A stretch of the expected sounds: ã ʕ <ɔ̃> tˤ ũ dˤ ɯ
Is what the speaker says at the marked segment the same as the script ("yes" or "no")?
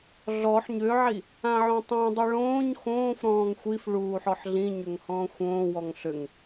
no